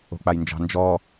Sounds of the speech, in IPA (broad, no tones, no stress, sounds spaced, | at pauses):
o̤ k͡p a j n d͡ʒ ɑ̤ n d͡ʒ ɔ